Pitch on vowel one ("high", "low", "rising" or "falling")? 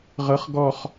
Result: rising